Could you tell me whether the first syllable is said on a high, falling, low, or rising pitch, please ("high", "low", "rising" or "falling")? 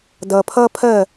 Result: low